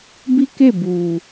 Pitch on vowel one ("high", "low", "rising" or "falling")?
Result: high